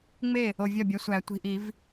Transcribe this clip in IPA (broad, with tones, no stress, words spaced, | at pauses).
ŋ͡me˥˩ | o˨vʲɒ˥˩bʲæ˨˥ sʷæ˨˩˦ tʷi̤˨ʔi˨˩˦v